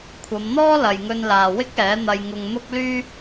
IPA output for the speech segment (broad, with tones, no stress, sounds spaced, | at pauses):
kʷʰ ɐ˨˧ m n̪ ɔː˥ l ɐ˨ j ŋ ɵ˧ n l aː˨ w ɪ˥ k̚ ɛː˨˥ n̪ ɐ˧ j ŋ ʊ˧ ŋ n̪ ʊ˥ k̚ l yː˥